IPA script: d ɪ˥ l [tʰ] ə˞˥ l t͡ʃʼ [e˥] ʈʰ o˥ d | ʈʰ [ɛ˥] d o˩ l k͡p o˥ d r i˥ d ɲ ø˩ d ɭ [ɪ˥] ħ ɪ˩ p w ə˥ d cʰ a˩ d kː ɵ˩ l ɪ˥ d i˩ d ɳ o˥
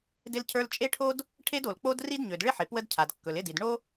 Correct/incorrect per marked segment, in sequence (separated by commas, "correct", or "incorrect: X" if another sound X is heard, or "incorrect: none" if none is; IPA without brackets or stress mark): incorrect: cʰ, correct, incorrect: e˥, correct